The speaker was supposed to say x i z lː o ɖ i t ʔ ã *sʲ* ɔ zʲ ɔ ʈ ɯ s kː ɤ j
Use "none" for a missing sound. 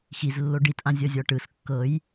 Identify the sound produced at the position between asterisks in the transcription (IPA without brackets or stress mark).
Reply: zʲ